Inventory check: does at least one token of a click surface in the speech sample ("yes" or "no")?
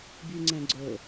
yes